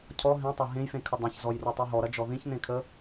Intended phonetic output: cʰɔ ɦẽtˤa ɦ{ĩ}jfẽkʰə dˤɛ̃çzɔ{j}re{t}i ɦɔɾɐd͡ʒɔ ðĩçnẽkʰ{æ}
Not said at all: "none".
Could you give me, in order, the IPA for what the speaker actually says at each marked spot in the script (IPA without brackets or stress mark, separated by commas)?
ẽ, j, tˤ, ə